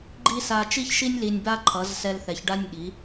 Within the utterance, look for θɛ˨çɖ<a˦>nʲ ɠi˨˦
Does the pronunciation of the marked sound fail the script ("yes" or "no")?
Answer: yes